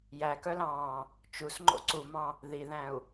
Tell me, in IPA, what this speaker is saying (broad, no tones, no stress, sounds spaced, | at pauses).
j æ k œ l ɑ̃ː | t͡ʃ u s ŋ͡ǃ o̰ ǀ u m ɑ̃ | ð i ð æ̃ u̯